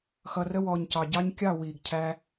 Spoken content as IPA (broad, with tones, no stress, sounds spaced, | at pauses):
x ʌ˨ r ə˧ w ɔː˨ ɲ c ɑ˨ ɟ ɑ˦ ɲ kʲ ɑ˦˨ w iː˨ ɡ cʰ æ˧